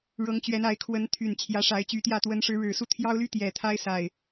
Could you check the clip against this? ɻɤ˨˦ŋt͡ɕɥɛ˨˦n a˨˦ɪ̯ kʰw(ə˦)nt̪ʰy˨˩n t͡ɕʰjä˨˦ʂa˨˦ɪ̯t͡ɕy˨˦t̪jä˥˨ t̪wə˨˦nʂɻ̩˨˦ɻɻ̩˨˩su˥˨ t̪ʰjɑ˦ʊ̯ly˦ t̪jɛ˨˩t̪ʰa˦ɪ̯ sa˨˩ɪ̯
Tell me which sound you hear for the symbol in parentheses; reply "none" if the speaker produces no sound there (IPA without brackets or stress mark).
ə˨˦